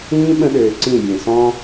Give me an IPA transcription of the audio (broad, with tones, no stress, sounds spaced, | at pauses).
ĩː˦ ɓ ə̃˧ ɗ øː˨ ǀ ĩ˦˨ bʲ ẽ˨ s ɔ̃˧